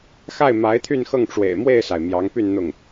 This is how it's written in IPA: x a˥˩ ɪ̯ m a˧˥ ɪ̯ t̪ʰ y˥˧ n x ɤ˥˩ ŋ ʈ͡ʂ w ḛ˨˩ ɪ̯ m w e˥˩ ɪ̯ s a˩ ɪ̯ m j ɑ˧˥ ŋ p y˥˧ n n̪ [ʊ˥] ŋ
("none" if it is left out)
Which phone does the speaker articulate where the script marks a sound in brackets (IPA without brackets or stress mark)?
ʊ˥˩